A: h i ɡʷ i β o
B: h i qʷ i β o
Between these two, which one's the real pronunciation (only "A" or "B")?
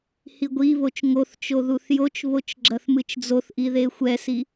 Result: A